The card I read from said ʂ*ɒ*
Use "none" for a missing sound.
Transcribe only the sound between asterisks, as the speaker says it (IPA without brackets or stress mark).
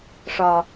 ɒ